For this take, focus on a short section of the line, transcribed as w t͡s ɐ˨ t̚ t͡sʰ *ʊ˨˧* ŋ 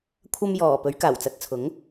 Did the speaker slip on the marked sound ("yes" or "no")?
yes